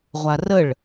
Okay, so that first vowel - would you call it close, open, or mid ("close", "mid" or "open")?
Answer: open